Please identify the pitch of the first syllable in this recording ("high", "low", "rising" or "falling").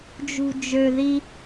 low